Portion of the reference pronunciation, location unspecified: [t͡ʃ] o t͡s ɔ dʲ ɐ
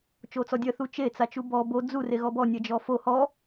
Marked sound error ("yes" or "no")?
no